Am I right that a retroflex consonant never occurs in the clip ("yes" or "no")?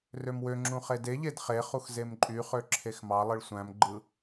no